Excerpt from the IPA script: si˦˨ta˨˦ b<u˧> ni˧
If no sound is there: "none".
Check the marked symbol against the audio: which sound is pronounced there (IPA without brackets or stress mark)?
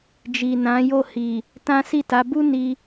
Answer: u˦